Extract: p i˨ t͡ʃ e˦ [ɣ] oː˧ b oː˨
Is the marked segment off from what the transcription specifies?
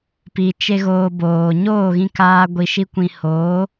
no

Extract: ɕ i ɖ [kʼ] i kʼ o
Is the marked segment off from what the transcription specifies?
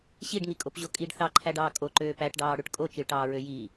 yes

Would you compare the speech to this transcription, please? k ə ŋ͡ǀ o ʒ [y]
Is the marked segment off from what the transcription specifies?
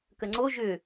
yes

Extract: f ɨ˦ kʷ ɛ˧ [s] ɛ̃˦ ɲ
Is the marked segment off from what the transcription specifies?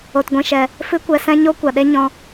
no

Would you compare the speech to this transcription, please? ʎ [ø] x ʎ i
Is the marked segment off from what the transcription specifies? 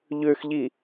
no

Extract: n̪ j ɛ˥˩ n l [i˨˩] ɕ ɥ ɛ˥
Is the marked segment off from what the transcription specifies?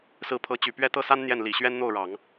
no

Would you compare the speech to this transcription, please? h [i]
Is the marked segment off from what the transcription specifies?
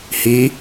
no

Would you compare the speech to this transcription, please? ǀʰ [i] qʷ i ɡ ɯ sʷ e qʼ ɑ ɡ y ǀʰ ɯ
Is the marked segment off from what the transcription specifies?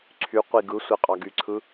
yes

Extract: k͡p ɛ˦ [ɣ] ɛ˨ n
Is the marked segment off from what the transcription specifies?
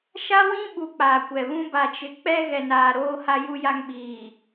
no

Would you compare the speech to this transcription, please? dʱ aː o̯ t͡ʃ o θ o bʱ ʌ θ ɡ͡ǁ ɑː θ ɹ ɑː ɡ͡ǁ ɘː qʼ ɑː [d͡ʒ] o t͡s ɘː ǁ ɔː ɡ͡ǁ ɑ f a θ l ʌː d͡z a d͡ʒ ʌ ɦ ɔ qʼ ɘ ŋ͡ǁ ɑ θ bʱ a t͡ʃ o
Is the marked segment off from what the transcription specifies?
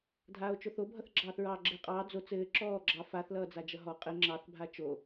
yes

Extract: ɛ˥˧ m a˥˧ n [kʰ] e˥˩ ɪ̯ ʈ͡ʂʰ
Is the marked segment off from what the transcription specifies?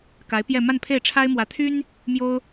yes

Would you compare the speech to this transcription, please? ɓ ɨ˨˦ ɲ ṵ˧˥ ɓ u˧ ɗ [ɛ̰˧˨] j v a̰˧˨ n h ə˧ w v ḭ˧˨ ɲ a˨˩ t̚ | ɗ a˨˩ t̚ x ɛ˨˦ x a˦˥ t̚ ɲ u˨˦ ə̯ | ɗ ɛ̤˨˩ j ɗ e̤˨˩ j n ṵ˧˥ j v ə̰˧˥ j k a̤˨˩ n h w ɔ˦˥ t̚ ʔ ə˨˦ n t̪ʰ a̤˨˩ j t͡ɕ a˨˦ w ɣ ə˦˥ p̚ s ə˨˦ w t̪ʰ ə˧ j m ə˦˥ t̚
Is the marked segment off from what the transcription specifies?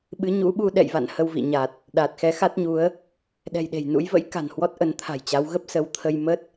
no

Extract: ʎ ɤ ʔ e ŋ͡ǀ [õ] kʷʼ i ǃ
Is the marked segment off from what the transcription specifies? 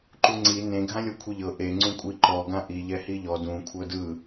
yes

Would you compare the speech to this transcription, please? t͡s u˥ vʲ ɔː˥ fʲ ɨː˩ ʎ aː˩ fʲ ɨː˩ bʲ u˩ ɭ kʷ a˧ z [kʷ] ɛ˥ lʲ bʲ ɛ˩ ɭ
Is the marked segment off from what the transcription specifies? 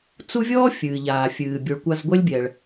yes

